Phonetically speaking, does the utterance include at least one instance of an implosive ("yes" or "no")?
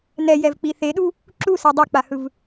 yes